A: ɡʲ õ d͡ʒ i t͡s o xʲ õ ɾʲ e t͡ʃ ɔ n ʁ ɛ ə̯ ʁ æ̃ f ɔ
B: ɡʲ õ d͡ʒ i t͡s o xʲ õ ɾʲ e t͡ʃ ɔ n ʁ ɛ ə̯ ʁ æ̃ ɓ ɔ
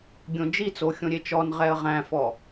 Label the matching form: A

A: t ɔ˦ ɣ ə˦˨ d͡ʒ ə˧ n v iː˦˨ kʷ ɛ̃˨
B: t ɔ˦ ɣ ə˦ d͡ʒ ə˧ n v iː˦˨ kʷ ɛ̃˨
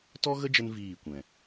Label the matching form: B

